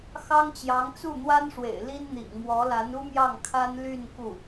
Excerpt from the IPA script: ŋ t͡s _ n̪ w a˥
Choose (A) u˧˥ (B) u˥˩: B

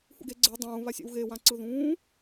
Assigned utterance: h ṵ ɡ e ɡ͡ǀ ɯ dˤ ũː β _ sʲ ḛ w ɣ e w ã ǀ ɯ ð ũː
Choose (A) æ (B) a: B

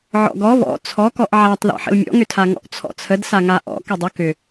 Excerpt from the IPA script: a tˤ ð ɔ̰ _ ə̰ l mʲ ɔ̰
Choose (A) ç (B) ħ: B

